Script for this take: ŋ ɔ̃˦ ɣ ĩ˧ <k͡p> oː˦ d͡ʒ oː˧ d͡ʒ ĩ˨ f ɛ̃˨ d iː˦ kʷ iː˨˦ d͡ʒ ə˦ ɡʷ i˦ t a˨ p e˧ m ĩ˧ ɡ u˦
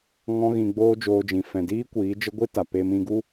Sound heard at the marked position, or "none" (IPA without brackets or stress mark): ɡ͡b